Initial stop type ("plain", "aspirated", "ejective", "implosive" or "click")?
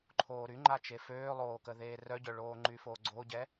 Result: click